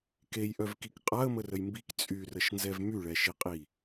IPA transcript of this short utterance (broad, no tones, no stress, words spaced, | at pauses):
kejʔœvkik qʼaə̯mərəj mbik t͡sʼyrəʃnzɛv myɭɛʃiqʼi